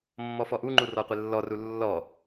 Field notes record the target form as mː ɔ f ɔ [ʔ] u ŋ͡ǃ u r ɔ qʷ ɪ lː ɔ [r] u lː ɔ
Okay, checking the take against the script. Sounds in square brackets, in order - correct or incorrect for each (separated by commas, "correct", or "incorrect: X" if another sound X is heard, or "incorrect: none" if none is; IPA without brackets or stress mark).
correct, correct